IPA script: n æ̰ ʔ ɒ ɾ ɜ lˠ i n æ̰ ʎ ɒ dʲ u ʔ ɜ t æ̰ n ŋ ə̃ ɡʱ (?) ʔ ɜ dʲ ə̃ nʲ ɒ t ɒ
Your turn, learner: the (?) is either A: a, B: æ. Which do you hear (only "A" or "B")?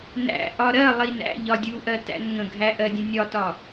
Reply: B